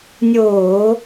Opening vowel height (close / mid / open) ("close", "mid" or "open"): mid